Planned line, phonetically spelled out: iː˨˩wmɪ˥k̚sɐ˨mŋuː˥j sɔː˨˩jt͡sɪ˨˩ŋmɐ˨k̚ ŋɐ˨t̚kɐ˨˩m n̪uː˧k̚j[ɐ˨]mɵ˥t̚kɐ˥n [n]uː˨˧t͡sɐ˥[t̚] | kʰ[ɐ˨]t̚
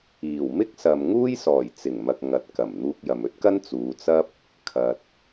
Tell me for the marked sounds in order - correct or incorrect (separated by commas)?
correct, incorrect, incorrect, correct